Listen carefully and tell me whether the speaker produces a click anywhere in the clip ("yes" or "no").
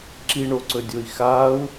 yes